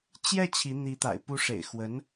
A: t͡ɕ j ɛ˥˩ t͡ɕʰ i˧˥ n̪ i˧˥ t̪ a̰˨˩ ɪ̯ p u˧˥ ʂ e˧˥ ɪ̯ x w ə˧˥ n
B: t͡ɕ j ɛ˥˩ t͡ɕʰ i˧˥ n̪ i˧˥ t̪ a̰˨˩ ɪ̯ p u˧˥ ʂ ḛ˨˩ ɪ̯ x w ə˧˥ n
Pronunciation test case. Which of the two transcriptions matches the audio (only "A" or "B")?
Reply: B